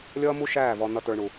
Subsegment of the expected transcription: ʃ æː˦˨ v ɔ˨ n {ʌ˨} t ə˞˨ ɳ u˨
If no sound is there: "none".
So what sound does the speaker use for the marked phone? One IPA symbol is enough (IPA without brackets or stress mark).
ʌ˨